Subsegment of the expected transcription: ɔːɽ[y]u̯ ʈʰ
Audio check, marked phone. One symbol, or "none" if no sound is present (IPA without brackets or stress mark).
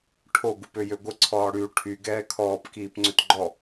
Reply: y